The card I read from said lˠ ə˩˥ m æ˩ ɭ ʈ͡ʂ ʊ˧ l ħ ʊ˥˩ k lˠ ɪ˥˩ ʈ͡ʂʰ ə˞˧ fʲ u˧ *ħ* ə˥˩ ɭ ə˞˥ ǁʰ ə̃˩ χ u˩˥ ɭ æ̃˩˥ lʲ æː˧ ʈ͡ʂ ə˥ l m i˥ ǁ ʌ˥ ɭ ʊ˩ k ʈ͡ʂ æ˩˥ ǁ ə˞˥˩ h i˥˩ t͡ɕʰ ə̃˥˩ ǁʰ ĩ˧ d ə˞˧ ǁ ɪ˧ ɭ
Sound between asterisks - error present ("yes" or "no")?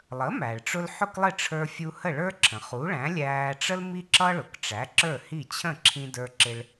yes